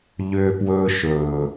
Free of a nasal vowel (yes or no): yes